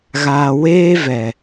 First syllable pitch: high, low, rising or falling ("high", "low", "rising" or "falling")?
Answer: low